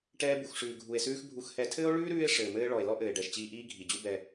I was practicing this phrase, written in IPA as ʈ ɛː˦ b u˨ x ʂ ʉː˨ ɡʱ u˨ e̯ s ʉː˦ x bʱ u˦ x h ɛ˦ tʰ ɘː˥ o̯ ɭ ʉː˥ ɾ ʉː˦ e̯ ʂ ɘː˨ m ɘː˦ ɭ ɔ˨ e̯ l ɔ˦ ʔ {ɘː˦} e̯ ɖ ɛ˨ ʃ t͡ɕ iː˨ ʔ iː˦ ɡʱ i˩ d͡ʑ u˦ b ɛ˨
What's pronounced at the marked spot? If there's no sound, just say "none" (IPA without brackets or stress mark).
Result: ɘː˩